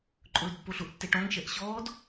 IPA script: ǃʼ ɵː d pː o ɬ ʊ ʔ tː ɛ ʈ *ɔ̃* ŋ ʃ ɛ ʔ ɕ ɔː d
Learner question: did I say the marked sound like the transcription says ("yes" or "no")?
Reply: yes